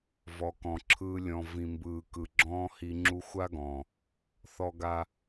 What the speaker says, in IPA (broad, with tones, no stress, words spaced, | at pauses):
vɔ˨kɔ̃˨ǁʰɯː˧ lʲɔ̃˨ vĩ˨mbɯː˨ kɯ˨ɡ͡ǁɔ̃ː˦hi˧ ŋ͡ǁu˧xʷa˦ ɡɔ̃˨ | θɔ˧ɡa˧